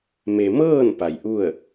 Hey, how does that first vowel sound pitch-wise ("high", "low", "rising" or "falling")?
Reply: low